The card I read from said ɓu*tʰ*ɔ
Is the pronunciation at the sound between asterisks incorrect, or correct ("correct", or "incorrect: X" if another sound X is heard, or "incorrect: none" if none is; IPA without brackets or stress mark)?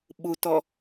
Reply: incorrect: t